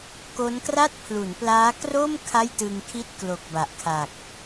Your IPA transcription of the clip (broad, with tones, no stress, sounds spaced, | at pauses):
k o˦˥ n k r a˥˩ t̚ pʰ l u˩˦ n p l aː˦˥ k r o˥˩ m kʰ a˥˩ j t ɯ˧ ŋ kʰ i˥˩ t̚ k l o˨˩ k̚ b a˨˩ ʔ kʰ a˨˩ k̚